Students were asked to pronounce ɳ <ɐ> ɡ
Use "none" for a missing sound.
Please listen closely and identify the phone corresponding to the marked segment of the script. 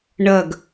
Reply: ɐ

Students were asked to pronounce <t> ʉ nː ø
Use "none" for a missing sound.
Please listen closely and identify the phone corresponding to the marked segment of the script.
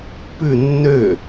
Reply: p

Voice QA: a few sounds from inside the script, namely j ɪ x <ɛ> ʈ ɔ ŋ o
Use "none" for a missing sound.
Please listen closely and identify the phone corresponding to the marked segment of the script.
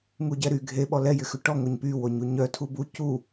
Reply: ʏ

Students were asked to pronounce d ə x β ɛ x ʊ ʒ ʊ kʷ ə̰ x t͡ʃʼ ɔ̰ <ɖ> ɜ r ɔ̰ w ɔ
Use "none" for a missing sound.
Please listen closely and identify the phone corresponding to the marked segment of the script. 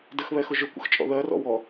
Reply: ð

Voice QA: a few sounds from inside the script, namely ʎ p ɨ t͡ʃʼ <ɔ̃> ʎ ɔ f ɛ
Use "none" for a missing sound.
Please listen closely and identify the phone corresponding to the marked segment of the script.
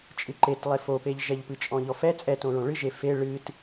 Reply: ɔ̃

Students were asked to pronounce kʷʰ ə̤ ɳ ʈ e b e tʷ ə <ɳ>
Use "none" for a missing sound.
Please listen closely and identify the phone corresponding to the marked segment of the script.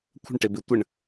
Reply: ɳ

